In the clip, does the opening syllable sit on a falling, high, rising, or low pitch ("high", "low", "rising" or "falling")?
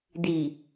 low